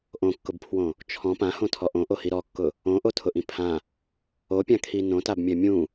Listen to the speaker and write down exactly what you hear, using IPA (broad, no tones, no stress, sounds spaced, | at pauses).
ʔ õ kː ʊ b pʰ w õ | t͡ʃʰ ɔ̃ p ã h õ tʰ ɔ ʔ õ ʔ o h i ɾ ɔ kː ʊ | õ ʔ o tʰ ʊ ʔ ĩ pʰ ã | o pʲ ã kʰ i n õ t a b mʲ ɛ mʲ ũ